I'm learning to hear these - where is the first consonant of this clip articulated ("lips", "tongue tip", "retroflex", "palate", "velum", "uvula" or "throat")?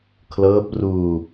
velum